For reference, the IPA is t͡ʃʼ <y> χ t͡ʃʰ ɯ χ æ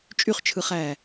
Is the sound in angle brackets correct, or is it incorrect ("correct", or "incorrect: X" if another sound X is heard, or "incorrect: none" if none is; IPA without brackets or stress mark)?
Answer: correct